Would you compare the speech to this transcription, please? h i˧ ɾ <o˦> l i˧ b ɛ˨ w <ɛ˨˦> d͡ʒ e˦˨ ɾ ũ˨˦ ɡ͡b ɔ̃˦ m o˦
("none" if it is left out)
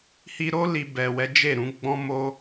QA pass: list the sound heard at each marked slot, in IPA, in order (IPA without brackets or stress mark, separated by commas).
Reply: o˦, ɛ˨˦